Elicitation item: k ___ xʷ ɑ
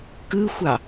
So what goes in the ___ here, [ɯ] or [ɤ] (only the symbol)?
ɯ